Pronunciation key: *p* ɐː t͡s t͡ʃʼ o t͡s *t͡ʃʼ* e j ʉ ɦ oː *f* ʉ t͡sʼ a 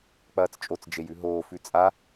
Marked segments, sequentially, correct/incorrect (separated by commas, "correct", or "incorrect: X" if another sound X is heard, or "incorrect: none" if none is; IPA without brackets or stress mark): incorrect: k͡p, incorrect: d͡ʒ, correct